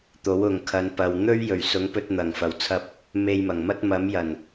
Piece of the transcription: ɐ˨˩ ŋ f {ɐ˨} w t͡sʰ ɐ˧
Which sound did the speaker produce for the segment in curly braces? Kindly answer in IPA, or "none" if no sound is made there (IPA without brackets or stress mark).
ɐ˨˩